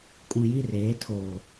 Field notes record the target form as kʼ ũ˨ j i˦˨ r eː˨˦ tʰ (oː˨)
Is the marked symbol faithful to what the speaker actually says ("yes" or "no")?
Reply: yes